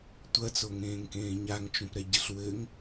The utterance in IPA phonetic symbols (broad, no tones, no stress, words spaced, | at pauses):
tʷɐt͡soŋẽːŋkẽː ɲaŋt͡ʃũpɾɛɟɨɬ wɘŋ